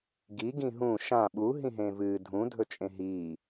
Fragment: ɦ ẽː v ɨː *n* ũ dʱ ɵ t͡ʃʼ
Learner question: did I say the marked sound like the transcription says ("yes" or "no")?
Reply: no